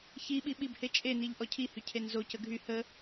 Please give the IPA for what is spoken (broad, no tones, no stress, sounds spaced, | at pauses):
ç i ɓ i ɓ i b h e t͡ʃʼ e n i ʎ ʔ ɔ cʰ i h y cʰ e n z o c ə ɡʱ y h ə